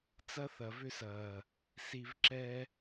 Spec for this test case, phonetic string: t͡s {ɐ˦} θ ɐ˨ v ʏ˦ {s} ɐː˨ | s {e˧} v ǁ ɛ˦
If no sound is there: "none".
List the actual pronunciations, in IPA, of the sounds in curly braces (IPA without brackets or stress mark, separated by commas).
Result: ɐ˦, s, i˧